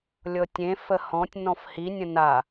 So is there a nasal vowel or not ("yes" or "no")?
yes